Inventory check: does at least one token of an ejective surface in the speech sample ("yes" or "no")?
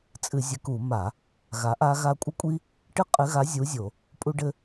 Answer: yes